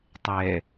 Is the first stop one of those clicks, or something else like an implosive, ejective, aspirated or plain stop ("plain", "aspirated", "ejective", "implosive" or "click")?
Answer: plain